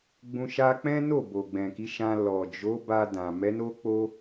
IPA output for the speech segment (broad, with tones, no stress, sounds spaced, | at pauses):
ɡ͡b ũ˧ ʃ a˦ k͡p ɛ̃˦ n o˦˨ b o˨ ɡ͡b ɛ̃˨ k i˨˦ ʃ ã˧ l ɔ˨ d͡ʒ o˨˦ b a˧ d ã˨ m ɛ˨˦ n o˦ k͡p o˦